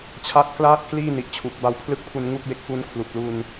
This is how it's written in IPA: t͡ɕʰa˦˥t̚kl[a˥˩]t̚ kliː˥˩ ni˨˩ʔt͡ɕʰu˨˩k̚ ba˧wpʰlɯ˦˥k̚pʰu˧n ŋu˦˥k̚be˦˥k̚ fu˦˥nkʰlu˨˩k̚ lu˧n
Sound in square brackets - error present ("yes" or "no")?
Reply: yes